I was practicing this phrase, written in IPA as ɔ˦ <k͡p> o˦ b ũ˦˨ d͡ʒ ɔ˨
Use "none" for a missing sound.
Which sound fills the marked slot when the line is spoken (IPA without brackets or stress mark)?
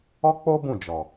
k͡p